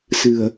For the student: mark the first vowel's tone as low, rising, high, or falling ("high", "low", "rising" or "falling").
low